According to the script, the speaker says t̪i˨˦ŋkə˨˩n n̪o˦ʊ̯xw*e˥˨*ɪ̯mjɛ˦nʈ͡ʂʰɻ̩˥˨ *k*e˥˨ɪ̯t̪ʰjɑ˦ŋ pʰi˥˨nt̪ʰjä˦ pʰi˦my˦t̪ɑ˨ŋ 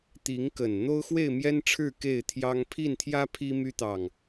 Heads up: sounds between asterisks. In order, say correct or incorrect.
correct, correct

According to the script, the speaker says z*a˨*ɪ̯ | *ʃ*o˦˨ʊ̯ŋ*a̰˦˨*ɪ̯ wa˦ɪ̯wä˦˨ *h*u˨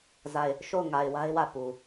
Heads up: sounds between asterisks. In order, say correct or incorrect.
incorrect: a˦˨, correct, incorrect: a˨, incorrect: p

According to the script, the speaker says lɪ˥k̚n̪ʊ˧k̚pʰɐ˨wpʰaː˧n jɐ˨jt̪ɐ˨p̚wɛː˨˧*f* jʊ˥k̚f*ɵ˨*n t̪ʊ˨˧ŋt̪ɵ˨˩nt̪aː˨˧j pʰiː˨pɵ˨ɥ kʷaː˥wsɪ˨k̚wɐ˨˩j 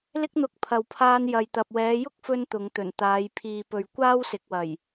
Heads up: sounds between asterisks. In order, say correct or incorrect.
incorrect: none, incorrect: ɵ˧

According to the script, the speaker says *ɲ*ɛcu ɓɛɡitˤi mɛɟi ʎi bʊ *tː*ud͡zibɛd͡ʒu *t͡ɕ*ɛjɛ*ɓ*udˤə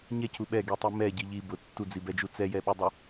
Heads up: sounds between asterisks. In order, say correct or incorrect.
correct, correct, incorrect: t͡s, correct

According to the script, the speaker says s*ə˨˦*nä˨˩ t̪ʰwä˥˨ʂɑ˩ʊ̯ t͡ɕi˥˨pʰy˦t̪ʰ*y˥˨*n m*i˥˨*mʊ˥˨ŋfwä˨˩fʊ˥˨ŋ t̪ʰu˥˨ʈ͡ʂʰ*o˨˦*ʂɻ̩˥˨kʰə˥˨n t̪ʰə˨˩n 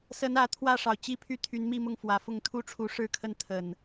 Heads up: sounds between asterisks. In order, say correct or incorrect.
correct, incorrect: y˨˦, correct, incorrect: u˨˦

